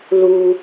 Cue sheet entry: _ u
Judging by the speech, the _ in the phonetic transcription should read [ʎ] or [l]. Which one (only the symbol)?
l